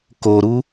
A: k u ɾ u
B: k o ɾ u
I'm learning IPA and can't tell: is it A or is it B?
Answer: B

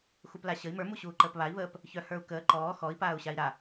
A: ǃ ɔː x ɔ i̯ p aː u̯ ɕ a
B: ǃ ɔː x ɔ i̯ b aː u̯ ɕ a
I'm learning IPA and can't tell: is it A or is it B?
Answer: A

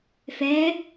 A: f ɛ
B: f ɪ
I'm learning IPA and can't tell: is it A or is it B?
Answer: A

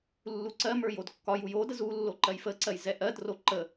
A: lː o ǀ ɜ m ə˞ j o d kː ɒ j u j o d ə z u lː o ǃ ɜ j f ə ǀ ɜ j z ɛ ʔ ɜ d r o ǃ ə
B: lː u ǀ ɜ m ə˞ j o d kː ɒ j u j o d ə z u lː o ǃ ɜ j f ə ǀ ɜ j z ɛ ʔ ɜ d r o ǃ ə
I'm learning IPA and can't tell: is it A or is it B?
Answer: B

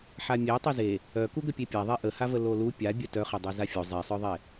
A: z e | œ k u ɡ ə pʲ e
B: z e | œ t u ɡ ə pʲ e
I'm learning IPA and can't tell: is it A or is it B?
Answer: A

